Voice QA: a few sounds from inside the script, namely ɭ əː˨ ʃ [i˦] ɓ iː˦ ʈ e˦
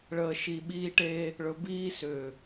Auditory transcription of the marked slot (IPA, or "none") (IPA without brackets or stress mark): i˨